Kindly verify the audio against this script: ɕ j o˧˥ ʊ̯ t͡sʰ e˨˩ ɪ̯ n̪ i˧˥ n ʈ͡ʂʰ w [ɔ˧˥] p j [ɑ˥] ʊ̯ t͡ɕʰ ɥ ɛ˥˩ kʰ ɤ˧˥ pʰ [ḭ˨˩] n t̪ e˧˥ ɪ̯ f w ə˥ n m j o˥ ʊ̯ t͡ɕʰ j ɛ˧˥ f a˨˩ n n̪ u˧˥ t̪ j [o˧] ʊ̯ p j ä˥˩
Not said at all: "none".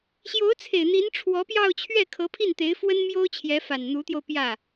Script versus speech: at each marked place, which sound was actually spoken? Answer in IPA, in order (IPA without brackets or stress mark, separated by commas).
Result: ɔ˧˥, ɑ˥˧, i˥˩, o˧